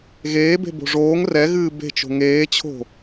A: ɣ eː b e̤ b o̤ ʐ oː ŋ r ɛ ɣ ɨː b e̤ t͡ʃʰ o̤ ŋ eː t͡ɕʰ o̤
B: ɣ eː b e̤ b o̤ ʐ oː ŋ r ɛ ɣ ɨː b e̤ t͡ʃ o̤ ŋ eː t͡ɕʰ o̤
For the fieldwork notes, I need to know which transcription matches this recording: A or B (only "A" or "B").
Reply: B